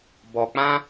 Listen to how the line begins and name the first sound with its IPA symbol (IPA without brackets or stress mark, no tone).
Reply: b